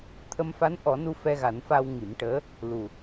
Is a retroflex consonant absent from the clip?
no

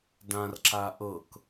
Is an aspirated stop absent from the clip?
yes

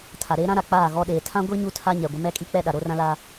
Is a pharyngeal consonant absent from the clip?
yes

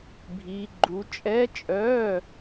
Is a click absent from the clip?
no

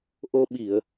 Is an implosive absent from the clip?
no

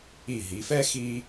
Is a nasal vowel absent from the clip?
yes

